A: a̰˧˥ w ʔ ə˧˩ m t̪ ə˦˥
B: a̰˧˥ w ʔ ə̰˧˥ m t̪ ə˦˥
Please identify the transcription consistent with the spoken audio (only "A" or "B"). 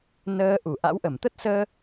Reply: A